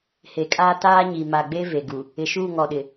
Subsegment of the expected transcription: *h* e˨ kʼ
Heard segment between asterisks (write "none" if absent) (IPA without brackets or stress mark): h